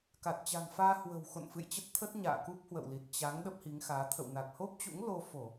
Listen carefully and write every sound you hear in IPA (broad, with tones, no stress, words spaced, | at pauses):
ka˨˩t̚t͡ɕa̤˨˩ŋfaː˧ hwə̤˨˩wxo̰˧˨n fɨ̰˧˨jt͡ɕə˦˥t̚t̪ʰə˦˥t̚ɲa̰ː˧˨ ku˦˥p̚hwə̰˧˨wli˨˩t̚ t͡ɕa˨˦ŋ ɗə˦˥p̚hi˨˦ŋxaː˨˦ t̪ʰə̰˧˨wna˨˩k̚ho˦˥p̚t͡ɕṵ˧˥ŋ lo˧fo˧˩˨